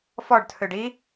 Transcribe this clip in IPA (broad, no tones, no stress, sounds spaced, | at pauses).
f ɔ ɖ tʰ ø ɖ i